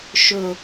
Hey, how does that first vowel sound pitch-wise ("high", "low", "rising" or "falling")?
low